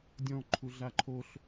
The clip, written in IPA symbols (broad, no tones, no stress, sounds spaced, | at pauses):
dʲ ɔ̃ ǃʰ u ɮ a ǃʰ o ɬ